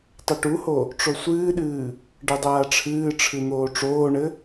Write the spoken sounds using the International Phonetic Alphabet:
tˤɐʈuho | ʈ͡ʂosʷɨːɗɨː | ɖɐdˤaːʈ͡ʂʰɨːʈ͡ʂʰɨ n̪oːʈ͡ʂoːɳɘ

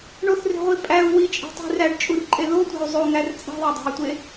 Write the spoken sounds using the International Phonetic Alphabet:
ɳoθre̤ʁʷi pʼæu̯ wit͡ʃʼe̤tˤi̤ ræɖt͡ʃʼurǃʼe ðotʷæ̤u̯ zˤoŋær t͡sʼe̤ðˤædˤæ̤y̯tʷe

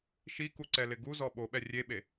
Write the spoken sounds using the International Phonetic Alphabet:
ʃikuǀɛlɪ ɡuzɔ ɓoɓɛ rʲeɓe

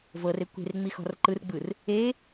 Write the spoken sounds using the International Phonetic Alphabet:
vɤr ekʷe̤r ŋ͡mixɔ̤rǃɯr ɡ͡bɯr | e

